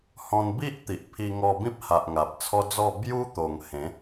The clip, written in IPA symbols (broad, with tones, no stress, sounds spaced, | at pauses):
h ɔ̃˧ n b i˦ ʔ t̪ i˨ ʔ pʰ i˧ ŋ ɔ˧ b ĩ˦ p̚ h a˨ ʔ ŋ a˨ p̚ t͡sʰ ɔ˦ d͡z ɔ˥˧ b j u˦ t̪ o˨˩ ŋ h ẽ˨˦